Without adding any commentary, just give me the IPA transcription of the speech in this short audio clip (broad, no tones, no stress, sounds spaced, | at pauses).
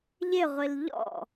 ʎ ɪ ʁʷ i l ʎ ɔ̰